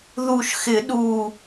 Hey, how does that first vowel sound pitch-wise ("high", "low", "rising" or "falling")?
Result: low